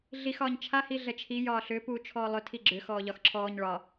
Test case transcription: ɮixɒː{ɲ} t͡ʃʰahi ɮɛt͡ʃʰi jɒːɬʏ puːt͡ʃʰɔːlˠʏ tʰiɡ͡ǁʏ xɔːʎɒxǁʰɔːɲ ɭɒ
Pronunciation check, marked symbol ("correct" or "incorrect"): correct